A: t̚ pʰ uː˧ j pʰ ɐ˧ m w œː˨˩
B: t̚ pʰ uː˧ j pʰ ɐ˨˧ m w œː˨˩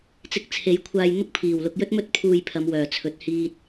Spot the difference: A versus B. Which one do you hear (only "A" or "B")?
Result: B